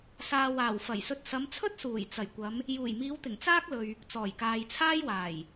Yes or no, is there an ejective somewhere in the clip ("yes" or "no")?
no